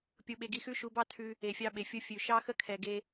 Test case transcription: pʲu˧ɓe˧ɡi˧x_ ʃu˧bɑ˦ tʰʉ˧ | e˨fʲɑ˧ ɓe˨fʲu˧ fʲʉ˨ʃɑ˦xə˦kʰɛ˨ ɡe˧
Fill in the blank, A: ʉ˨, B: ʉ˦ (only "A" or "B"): B